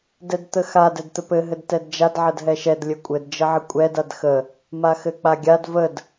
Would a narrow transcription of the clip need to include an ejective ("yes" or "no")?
yes